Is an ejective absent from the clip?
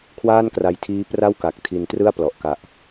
yes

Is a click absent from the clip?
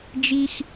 yes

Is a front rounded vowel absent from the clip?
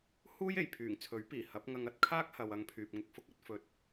no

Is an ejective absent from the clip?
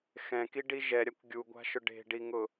yes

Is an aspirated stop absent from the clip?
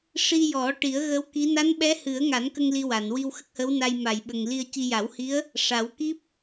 yes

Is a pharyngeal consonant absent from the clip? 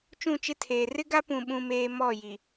yes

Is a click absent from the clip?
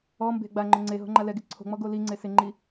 no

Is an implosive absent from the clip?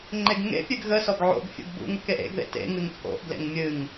yes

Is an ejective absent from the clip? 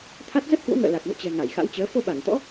yes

